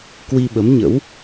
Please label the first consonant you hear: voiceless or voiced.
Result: voiceless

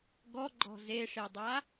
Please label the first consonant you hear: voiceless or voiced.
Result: voiced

